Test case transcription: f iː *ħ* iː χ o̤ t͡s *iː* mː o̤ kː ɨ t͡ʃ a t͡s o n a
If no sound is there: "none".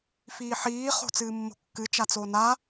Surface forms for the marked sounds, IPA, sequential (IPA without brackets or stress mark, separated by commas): ħ, ɨː